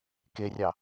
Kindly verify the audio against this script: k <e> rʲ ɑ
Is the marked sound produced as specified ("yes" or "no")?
yes